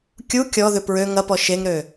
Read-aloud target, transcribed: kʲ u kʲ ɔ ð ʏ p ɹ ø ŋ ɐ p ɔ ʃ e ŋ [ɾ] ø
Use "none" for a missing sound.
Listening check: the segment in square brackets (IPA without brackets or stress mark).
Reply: ɾ